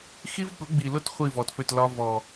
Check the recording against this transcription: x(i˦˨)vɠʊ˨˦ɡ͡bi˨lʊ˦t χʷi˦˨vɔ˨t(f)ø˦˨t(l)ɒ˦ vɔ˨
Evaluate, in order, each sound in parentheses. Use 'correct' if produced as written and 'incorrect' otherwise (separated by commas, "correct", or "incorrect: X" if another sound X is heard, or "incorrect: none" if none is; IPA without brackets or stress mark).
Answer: incorrect: i˦, correct, correct